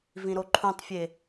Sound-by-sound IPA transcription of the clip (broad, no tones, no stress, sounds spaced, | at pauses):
v ĩ ɾ o ǃʰ ũ tˤ fʲ e